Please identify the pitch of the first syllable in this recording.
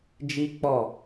high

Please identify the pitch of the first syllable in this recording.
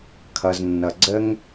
low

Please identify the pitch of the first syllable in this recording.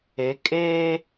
rising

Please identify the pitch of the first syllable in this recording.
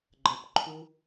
high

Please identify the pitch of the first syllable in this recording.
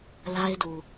high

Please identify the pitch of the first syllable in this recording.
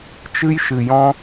high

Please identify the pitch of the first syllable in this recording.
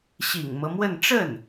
low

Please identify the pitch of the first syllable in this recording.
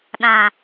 low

